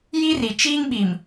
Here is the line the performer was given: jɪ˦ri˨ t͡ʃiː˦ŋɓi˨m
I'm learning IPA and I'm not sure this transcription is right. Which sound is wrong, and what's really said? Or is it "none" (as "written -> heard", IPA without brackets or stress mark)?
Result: ɪ˦ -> i˦